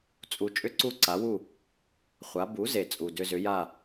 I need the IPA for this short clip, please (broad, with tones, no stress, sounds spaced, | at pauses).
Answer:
t͡sʼ u˧ t͡ʃʼ ʏ˥ ǀ u˥˩ ǀ a˩˥ w u˥˩ | χʷ a˩˥ b u˩˥ z e˩ t͡sʼ u˩ d ʏ˧ z ʏ˩˥ j a˥˩